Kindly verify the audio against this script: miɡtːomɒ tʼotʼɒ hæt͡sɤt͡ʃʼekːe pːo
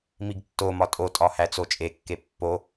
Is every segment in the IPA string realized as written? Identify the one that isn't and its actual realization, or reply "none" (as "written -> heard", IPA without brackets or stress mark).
ɤ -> o